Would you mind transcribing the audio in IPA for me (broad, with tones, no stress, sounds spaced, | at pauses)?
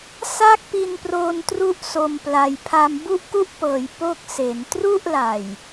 s a˥˩ k̚ p i˧ n p r oː˧ n t r u˥˩ ʔ s o˧ m p l a˧ j pʰ a˧ m b u˥˩ ʔ k u˥˩ ʔ p ɤː˩˦ j p o˥˩ k̚ s e˩˦ n t r u˥˩ ʔ l a˨˩ j